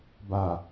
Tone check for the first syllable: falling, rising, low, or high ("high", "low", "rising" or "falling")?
low